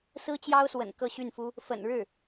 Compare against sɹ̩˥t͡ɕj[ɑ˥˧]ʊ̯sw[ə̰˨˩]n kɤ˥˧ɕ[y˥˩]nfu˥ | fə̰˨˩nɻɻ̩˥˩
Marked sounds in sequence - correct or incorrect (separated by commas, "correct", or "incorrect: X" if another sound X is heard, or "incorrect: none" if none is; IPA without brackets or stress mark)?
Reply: incorrect: ɑ˥, correct, correct